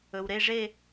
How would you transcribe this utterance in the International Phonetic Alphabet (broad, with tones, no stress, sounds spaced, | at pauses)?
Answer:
ɵ˩ w ɾ e˥˧ ʐ e˥˧